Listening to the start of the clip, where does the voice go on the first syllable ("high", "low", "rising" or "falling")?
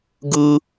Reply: high